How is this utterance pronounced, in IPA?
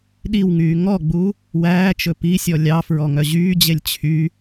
ɗ i w ŋ yː ŋ ɔ ɡ͡b u | w æː t͡ʃ ɵ p i sʲ ɔ lʲ ɑ f ɹ ɔ ŋ œ ʑ yː d͡ʑ e lʲ t͡ɕʰ y

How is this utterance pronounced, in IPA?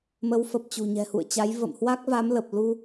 m ə˨˦ w f ə˨˩ p̚ t͡ɕ ṳ˨˩ ɲ ɛ̤˨˩ h ṵ˧˨ ə̯ t͡ɕ a˨˦ j v ə̰˧˨ m h w a˦˥ k̚ v a˨˦ m l ə˨˩ p̚ l u˧

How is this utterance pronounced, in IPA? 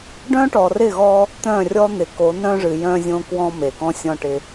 ɖ œ̃˦ ʈ ɔ˨ r ɪ˦˨ ɣ ɔ˦ | t̪ œ̃˦˨ rʲ ɔ˦ n̪ ɪ˨ k o˨˦ n œ̃˦ ʐ ɨ˨ j œ̃˦ zʲ õ˦ k w ɔ̃˦ m e˨ k ɔ̃˦ sʲ ɔ̃˦ ʈ ɪ˦

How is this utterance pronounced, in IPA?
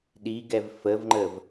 ɗ i ɡ ɛ v f ə v ŋ͡ǃ ə v

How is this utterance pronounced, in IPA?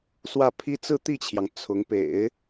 s w ä˥˩ pʰ i˥ t͡s ɹ̩˥˧ t̪ i˥˩ t͡ɕʰ j ɑ˩ ŋ t͡sʰ ʊ˧˥ ŋ p ḛ˨˩˦ ɪ̯

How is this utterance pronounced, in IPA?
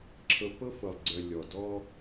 ǁʰ ɤ˧ p ɤ˦ f ɤ˨ lˠ ɡ͡ǀ œ˨ lʲ ɔ˨ d ɔ˦

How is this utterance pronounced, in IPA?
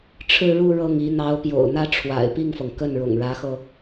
ʈ͡ʂʰ ɻ̩˥˧ ɻ u˥˧ ɻ ɤ˥˩ ŋ i˧˥ n̪ ɑ˧˥ ʊ̯ p j o̰˨˩ ʊ̯ n̪ ä˥ ʈ͡ʂʰ w a̰˨˩ ɪ̯ p i˥˩ ŋ f ɤ˩ ŋ k ə˥˩ n ɻ ʊ̰˨˩ ŋ ɻ ä˧˥ x ɤ˧

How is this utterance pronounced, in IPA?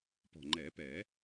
p ɔ̤˨˩ ŋ͡ǃ ɛ˨˩˦ p ɛ˨˩˦

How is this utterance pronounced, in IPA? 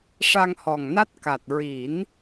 ʂ a˧ ŋ h ɔ˨˩ ŋ n a˦˥ t̚ k a˨˩ t̚ ɹ i˨˩˦ n

